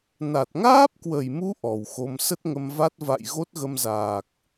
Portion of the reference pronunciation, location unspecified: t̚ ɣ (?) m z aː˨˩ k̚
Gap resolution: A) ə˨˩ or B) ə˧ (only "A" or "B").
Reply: B